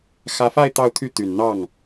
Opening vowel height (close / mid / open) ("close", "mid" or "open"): open